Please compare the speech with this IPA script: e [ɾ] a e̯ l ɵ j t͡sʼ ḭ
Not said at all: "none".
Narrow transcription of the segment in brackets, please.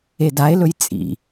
d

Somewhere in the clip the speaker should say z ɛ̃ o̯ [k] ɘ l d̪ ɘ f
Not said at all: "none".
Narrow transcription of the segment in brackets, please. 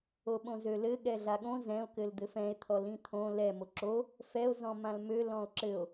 k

